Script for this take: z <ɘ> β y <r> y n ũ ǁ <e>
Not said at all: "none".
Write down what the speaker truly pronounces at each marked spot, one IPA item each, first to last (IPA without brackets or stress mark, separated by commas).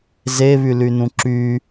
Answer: e, l, y